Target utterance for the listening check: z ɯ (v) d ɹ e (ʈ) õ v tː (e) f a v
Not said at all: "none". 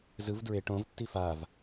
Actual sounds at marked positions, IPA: v, ʈ, i

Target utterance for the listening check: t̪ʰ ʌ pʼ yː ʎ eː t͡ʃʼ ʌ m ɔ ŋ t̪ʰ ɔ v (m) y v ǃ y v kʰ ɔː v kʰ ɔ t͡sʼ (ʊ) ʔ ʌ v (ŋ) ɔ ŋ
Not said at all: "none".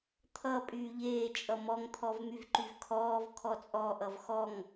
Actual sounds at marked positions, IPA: m, ɔ, x

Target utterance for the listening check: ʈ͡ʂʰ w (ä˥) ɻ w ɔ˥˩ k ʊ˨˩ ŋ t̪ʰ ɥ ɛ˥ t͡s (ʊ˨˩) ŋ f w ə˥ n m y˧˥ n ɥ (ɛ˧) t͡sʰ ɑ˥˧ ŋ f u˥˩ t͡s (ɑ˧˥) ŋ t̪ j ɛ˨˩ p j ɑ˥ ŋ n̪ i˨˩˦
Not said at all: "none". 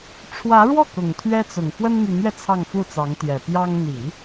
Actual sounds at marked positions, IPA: ä˧˥, ʊ˨˩, ɛ˧, ɑ˧˥

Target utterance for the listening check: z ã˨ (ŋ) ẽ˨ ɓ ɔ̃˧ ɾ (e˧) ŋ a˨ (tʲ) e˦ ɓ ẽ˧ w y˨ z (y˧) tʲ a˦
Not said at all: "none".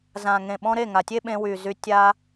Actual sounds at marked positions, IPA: ŋ, e˦˨, tʲ, y˧

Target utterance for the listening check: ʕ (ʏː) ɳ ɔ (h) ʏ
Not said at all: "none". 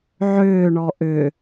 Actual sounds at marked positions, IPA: ʏː, ʔ

